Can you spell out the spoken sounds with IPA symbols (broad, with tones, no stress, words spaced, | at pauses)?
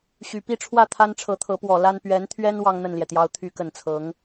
ɕy˨˩ pi˥˧ʈ͡ʂʰwä˥˩ t̪ʰa˥nʈ͡ʂʰɤ˧˥t̪ʰɤ˧˥pwɔ˨˩ la˥n pɥɛ˧˥nt̪ʰɥɛ˥n wɑ˥ŋn̪ə˥˩nljɛ˩t̪jɑ˧˥ʊ̯ t̪ʰy˧˥kə˨˩nt͡sʰɤ˧˥ŋ